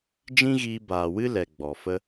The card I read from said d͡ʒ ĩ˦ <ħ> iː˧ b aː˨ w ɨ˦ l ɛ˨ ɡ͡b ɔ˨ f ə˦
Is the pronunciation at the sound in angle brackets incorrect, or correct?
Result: incorrect